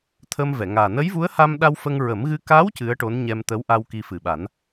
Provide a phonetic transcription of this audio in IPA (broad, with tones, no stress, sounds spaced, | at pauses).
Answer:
t̪ʰ ə˧ m v ɛ˨˩˨ ŋ aː˨˩ n ə˧˥ j v u˧˥ ə̯ h a˧ m ɗ a˧ w f ə˧ ŋ ɹ ə˨˩˦ m ɣ ɨ˧ k a˧˥ w c ɨ˧˥ ə̯ ʈ o˧˥ n ɲ ɛ˧ m t̪ ə˧˥ w ʔ a˧ w k i˧ f ɨ˨˩ ɓ a˨˩˦ n